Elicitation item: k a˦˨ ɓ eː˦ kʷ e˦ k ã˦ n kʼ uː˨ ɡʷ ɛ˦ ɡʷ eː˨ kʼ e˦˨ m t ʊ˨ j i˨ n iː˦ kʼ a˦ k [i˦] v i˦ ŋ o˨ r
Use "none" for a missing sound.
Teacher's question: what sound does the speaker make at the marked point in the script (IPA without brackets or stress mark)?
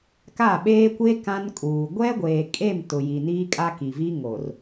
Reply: i˨